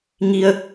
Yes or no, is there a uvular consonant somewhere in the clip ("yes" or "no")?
no